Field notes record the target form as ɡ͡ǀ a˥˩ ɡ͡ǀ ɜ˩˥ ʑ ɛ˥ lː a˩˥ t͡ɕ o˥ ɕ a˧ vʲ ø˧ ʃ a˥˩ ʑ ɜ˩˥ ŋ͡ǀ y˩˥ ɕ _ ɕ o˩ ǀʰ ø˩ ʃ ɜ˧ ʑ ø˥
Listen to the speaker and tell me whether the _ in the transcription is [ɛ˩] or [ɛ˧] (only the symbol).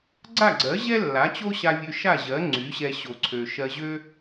ɛ˧